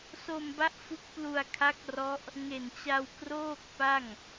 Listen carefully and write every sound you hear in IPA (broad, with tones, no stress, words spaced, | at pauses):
so˧mba˦˥ʔ fu˦˥k̚plu˧a̯ kʰa˦˥k̚rɔ˦˥ʔ | ŋe˨˩nt͡ɕa˧wkroː˥˩k̚pa˥˩ŋ